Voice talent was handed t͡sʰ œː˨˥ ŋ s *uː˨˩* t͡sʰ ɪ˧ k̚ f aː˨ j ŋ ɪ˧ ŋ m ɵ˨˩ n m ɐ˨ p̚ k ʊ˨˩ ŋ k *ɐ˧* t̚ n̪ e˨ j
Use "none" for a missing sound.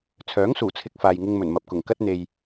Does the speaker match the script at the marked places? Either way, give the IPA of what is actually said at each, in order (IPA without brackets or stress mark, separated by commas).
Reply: uː˨˩, ɐ˥